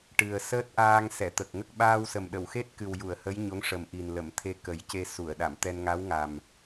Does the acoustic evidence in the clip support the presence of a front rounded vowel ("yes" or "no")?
no